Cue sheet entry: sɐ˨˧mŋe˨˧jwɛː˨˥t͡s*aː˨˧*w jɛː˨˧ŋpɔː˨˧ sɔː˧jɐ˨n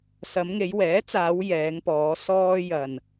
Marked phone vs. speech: correct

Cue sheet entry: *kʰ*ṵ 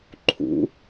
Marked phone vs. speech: incorrect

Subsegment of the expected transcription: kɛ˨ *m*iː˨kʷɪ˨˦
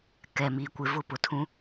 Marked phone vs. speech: correct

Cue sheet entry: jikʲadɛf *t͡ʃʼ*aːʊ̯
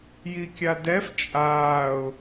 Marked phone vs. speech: correct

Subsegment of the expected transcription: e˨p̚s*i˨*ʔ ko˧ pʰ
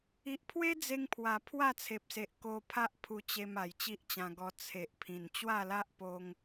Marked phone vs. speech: incorrect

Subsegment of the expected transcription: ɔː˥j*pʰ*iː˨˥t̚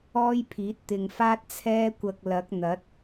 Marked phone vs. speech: correct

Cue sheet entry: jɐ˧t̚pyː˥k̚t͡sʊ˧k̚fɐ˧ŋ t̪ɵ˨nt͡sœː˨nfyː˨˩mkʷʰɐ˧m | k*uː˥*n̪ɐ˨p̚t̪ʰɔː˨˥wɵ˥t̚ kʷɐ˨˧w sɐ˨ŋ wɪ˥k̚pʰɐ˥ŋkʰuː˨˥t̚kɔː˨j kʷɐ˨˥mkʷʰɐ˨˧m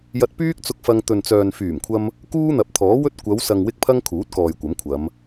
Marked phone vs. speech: correct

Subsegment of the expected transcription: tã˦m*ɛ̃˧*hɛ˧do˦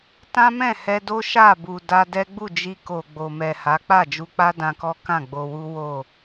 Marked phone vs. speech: incorrect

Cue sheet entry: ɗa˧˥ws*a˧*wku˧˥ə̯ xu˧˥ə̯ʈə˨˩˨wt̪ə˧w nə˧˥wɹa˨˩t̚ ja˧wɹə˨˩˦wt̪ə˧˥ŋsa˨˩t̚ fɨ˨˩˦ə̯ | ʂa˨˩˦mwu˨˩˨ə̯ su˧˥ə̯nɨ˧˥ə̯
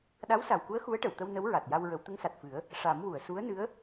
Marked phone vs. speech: incorrect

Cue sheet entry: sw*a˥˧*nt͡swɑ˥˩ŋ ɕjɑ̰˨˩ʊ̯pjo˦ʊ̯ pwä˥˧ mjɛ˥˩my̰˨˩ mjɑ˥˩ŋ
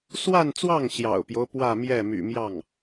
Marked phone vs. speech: correct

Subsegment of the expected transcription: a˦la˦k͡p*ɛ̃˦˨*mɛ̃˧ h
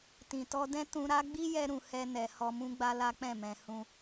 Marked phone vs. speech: correct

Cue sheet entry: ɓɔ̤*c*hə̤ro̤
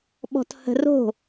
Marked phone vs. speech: incorrect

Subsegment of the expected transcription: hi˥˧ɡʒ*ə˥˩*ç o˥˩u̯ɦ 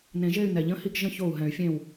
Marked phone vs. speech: incorrect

